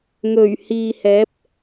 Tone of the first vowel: low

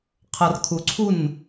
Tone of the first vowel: low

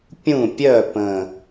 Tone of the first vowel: falling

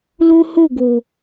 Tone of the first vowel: high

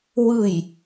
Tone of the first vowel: falling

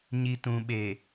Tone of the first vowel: low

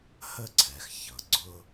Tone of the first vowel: high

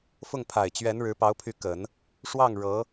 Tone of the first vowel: falling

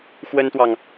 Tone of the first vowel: high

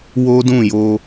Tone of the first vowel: high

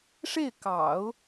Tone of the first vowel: falling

